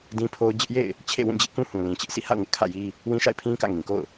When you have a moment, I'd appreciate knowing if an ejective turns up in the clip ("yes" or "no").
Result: no